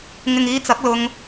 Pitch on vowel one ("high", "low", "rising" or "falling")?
low